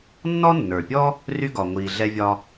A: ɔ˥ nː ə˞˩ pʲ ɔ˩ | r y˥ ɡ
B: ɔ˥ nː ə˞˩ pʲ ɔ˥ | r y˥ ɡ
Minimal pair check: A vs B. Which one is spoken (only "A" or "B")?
B